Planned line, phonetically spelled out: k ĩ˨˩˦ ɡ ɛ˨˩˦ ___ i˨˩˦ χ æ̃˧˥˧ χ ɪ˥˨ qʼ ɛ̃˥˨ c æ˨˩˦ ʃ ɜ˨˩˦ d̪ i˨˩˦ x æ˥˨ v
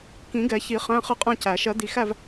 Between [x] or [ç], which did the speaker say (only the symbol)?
ç